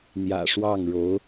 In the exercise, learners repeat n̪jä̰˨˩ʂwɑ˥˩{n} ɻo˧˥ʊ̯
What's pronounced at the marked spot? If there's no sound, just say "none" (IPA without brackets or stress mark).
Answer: ŋ